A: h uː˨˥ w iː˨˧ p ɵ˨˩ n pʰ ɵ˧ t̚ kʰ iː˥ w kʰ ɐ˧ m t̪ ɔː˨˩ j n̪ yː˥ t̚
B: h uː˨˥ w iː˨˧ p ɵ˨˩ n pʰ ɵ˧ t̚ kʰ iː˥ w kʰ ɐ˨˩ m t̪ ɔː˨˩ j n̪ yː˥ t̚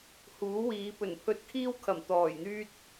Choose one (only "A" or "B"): B